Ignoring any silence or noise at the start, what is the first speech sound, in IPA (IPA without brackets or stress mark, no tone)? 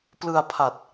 p